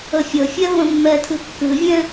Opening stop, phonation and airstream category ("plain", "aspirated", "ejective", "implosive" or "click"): aspirated